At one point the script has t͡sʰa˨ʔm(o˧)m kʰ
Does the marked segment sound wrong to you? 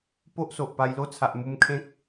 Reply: yes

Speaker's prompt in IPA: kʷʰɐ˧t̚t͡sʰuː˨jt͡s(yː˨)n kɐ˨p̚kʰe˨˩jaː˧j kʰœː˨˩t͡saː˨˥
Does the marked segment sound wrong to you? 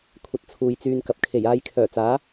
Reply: yes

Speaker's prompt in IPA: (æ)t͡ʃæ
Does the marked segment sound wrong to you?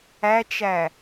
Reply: no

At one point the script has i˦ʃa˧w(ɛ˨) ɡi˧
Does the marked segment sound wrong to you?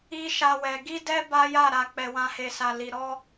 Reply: no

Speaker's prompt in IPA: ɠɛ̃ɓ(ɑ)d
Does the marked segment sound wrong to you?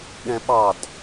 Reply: no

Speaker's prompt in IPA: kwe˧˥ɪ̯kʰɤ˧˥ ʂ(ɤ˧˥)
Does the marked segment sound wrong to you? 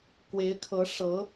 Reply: no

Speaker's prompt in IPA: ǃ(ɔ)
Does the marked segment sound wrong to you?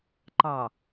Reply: yes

